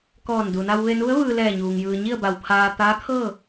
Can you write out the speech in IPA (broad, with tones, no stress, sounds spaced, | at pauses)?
k ɔː˧˩ n d u˩ n a˧ w ʋ e˧ n u˧˥ ə̯ ʋ ɯː˧ l ɛː˧˩ ɲ uː˩ ŋ j ɯː˩ ɲ i˥˨ ə̯ b a˧˩ w pʰ aː˧ t̪ aː˧˥ kʰ ɤː˥˨